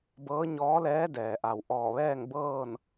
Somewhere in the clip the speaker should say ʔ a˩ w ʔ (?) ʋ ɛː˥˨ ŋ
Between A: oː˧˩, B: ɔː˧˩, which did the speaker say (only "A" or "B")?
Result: B